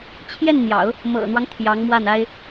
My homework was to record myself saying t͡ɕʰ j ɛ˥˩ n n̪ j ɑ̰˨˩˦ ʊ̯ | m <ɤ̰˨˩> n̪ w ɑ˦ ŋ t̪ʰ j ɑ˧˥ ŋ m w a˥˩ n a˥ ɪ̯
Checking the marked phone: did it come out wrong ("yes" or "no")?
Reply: no